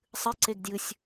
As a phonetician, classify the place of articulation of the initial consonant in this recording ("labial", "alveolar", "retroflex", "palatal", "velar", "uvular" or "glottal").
alveolar